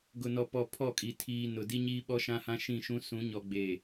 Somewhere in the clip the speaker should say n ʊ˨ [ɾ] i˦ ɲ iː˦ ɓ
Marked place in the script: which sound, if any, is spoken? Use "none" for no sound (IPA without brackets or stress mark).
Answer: d